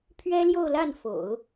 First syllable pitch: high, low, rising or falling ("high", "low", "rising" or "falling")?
high